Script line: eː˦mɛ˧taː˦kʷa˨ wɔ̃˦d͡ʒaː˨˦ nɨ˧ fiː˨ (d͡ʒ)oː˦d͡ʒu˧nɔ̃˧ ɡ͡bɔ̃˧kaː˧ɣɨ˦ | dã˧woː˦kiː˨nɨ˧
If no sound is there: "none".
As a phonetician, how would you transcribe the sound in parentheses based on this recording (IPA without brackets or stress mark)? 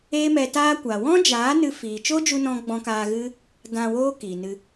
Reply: t͡ʃ